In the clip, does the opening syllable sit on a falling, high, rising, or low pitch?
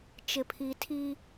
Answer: low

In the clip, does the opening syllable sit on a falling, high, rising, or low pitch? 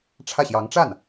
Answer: falling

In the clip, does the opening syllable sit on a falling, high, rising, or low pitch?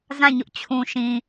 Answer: falling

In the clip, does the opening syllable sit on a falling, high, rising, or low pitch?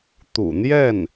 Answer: low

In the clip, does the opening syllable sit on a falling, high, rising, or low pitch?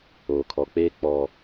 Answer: low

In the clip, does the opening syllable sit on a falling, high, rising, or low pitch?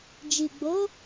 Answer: low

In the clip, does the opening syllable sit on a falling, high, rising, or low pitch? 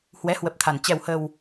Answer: rising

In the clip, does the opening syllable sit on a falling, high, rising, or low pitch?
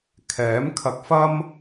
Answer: rising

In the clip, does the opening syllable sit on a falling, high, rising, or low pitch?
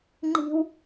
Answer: high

